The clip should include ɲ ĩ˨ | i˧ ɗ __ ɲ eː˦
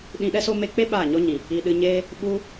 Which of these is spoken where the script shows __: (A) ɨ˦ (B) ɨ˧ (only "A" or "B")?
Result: B